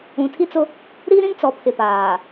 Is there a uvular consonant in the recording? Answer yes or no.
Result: no